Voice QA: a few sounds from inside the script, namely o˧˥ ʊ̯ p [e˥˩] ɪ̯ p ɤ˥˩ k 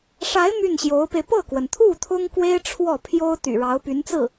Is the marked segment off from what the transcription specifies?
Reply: yes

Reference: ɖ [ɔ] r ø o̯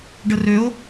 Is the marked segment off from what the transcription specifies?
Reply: yes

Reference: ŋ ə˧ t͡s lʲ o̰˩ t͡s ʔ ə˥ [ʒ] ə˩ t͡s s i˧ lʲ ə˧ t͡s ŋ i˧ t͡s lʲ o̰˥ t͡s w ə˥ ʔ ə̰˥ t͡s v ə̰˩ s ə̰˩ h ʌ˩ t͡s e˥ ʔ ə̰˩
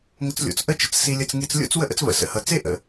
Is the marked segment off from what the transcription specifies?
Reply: yes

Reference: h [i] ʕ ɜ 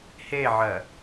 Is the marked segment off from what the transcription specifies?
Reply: yes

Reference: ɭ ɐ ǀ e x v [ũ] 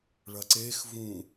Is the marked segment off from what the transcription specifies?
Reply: no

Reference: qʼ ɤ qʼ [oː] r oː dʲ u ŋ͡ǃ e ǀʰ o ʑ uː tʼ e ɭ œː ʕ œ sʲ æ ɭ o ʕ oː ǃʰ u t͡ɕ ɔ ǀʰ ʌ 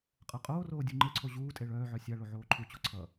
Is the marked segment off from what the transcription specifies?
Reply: no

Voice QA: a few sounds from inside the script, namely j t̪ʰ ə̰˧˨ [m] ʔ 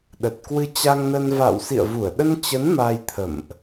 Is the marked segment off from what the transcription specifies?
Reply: no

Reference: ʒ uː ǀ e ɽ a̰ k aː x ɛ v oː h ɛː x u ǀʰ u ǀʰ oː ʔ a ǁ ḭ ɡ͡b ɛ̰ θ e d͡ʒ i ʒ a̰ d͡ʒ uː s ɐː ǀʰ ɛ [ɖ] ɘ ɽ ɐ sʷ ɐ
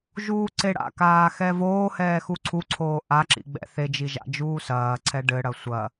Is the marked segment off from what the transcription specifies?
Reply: no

